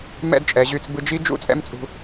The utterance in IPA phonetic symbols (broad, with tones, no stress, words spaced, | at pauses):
mɛ̰˥˧dt͡ʃʼɛ˩˧ʑy˧t͡s bɯ˧d͡ʒi˦˥ d͡ʒṵ˥˧t͡sʼɛ̰˦˥mt͡sʼṳ˧